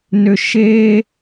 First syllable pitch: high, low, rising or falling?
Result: low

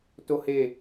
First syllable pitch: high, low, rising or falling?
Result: high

